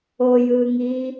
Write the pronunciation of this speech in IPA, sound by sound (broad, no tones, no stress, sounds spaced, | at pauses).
o j ɯː ŋ iː